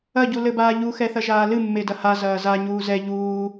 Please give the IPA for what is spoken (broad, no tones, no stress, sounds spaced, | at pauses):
ɐ ɟ u l ɘ b aː ʎ u x ɛ θ ɐ ʒ aː l ɨ mː e d ɐ h a z ɐː z a ɲ uː z ɛ ʎ uː